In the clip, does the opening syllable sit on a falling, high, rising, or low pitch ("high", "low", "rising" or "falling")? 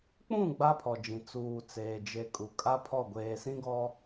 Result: falling